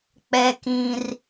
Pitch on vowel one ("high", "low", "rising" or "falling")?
high